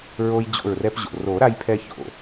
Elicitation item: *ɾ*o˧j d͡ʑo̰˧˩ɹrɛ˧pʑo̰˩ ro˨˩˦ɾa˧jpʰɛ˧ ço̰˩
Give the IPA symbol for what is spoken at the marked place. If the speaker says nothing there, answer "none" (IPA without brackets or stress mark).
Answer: ɹ